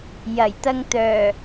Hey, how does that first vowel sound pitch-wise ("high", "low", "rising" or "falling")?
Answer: low